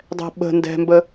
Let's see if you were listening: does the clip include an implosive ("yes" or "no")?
yes